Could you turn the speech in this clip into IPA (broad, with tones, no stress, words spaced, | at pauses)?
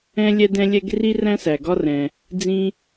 ɛ̃˥ lʲɛ˥dɛ̃˥lʲɛ˥ɡ ri˥ræ̃˥sæ˩ ɡɒ˥rɛ̃˩ | d͡zĩ˥